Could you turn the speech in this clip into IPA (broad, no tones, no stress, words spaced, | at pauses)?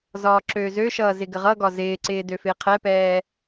zɒːǁøːzøʃʌː zɪɡəʁʌɡɒ zɪːǀɪː døfɪːqʰɛpɛː